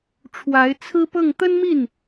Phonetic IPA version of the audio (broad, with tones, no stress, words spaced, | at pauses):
ʈ͡ʂʰwa˧˥ɪ̯t͡sʰɹ̩˥ pɤ˥˩ŋ t̪ə˥nmi˥˩n